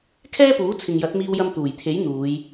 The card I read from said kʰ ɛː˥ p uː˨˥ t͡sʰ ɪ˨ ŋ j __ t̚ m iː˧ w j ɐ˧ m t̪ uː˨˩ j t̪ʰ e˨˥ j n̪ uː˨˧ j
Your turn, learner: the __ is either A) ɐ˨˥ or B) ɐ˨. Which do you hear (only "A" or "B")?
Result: A